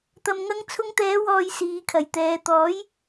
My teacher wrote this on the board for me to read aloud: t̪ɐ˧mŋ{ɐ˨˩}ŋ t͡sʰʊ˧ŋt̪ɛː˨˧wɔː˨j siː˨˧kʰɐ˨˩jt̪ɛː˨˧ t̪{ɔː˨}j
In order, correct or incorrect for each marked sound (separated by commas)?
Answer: incorrect, incorrect